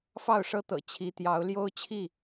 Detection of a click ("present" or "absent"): absent